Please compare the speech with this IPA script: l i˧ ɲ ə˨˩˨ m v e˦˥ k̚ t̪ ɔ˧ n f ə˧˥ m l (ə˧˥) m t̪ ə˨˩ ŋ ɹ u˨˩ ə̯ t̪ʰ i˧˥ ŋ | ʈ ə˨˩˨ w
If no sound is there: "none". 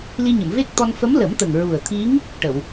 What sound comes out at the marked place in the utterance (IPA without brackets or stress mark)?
ə˨˩˦